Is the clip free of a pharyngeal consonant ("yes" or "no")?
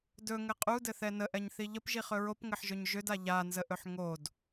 no